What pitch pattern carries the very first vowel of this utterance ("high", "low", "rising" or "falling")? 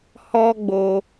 high